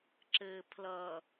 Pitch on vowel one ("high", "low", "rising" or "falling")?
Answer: low